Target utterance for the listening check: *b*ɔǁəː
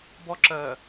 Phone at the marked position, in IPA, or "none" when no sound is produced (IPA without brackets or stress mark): b